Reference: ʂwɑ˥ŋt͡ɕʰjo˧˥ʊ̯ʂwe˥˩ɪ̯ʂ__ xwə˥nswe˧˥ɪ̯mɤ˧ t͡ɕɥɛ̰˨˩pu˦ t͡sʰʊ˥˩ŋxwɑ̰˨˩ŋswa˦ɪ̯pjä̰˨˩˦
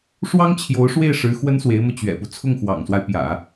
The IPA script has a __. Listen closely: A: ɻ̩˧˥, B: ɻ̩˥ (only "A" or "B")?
A